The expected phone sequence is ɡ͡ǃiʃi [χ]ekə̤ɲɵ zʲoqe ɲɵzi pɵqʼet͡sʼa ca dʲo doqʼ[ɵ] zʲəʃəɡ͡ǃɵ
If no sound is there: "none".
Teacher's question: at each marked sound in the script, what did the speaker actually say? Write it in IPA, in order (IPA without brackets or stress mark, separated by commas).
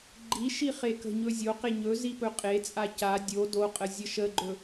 χ, ə